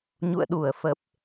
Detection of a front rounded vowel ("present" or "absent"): absent